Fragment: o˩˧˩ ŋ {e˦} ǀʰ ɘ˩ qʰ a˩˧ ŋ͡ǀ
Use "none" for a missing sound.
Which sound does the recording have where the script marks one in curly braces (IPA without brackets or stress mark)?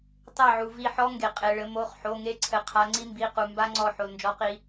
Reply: e˦